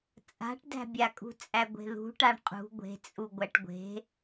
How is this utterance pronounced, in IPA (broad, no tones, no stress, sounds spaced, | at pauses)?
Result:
t͡sʼ a̤ ʈ d æ̤ bʲ a kʼ ṳ t͡sʼ æ ɡʷ e̤ ð ṳ ʈ a ɳ qʼ ṳ ɡʷ e̤ t͡sʼ u ɡʷ æ ʈ ɡʷ e̤